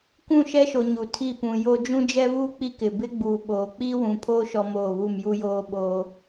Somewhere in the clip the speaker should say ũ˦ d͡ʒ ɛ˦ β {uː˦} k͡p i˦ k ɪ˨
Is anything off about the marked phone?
no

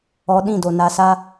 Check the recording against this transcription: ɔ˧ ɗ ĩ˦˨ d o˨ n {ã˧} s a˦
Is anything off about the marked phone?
yes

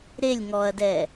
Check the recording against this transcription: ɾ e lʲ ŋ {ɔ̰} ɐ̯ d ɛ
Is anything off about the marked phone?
yes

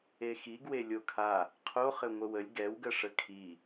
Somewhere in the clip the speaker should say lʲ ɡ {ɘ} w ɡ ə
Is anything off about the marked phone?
yes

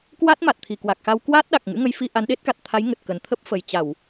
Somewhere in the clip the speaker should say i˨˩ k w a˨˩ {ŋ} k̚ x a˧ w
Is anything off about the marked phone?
yes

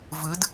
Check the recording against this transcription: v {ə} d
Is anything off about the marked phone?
yes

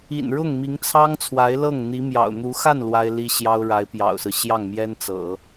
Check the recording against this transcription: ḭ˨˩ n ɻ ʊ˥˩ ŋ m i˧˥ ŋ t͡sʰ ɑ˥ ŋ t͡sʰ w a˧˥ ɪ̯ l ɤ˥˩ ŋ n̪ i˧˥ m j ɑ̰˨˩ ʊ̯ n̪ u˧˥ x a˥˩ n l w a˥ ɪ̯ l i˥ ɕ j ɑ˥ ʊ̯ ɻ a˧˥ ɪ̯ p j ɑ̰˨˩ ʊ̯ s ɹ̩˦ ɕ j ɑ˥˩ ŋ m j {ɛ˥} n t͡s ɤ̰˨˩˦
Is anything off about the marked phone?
no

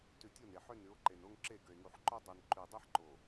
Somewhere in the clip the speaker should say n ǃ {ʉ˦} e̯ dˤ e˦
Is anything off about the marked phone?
yes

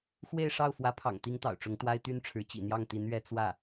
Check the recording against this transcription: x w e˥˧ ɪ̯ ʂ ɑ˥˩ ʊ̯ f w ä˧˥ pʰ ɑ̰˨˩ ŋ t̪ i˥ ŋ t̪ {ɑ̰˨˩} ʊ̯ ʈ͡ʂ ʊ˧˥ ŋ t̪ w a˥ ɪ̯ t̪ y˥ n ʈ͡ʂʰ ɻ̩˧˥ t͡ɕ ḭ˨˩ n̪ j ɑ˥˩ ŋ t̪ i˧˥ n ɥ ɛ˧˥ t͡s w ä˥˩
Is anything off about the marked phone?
no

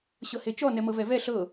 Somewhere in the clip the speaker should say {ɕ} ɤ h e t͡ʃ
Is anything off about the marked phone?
no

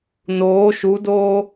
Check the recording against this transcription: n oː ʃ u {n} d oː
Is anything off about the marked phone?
yes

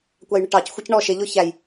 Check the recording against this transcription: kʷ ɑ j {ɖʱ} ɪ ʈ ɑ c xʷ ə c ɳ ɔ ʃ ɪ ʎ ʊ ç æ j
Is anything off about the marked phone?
yes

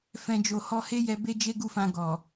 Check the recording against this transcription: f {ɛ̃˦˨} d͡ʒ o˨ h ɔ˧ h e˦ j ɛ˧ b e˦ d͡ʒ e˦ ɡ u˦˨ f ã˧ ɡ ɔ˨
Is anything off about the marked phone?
yes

